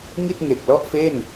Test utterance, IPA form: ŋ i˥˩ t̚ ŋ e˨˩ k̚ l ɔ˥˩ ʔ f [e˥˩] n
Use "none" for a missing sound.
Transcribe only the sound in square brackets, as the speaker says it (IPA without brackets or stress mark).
e˥˩